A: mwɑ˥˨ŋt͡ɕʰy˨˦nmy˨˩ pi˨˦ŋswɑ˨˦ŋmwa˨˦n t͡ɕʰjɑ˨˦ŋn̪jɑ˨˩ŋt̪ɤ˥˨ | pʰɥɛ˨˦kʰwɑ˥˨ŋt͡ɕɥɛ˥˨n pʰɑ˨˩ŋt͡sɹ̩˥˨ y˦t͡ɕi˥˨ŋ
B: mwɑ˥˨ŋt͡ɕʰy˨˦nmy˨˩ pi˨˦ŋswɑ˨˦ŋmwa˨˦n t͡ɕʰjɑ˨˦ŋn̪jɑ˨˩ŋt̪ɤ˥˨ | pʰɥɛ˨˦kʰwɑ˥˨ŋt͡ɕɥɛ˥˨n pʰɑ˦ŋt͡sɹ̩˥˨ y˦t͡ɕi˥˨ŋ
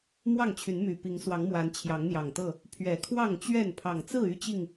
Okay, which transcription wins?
A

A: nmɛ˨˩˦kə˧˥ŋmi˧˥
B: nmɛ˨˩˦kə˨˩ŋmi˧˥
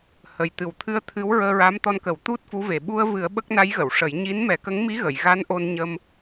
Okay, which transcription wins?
A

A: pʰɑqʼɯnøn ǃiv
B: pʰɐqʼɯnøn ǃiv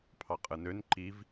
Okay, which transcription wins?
A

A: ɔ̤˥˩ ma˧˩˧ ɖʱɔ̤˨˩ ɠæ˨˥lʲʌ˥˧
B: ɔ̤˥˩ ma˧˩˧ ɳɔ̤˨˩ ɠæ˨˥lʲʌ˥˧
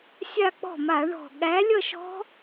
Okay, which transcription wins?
B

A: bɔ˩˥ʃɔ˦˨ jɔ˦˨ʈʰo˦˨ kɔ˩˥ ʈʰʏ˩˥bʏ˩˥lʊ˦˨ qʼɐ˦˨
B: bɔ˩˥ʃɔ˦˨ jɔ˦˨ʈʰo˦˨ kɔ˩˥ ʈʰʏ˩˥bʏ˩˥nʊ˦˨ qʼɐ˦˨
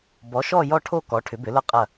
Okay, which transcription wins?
A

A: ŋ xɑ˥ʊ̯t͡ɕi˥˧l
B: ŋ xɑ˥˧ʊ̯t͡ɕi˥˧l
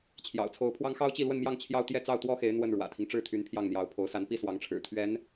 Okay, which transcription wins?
A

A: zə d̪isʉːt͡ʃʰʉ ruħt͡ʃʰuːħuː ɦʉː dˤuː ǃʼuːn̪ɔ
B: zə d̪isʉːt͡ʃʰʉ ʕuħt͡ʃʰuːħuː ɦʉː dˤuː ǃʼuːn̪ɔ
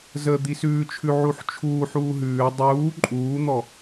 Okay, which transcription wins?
B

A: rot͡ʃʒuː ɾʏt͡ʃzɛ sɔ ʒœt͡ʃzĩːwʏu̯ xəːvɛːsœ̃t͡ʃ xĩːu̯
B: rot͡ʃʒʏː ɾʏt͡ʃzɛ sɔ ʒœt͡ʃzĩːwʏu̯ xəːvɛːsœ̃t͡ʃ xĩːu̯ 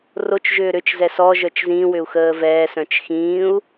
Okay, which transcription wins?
B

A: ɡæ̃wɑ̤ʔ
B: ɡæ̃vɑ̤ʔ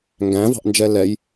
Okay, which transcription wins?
B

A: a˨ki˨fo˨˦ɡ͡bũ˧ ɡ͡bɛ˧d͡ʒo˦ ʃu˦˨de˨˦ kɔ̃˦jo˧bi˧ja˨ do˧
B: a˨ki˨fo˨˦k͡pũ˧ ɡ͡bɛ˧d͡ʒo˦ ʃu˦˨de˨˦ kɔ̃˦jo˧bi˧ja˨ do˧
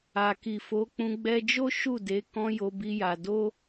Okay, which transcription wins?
B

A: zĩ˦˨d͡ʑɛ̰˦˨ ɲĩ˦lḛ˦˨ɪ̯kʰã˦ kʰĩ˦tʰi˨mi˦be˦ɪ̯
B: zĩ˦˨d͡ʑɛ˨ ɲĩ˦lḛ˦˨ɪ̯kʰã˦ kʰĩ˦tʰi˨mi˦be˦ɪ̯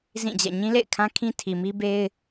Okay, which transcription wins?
A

